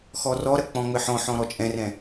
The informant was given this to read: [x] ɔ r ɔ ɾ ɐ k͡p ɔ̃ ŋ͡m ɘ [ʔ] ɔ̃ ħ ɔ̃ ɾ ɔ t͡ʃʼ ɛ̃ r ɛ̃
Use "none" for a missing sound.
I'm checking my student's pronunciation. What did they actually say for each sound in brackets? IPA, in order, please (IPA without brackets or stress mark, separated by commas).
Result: x, ħ